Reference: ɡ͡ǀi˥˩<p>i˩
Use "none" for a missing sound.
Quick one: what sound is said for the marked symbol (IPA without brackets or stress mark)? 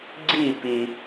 p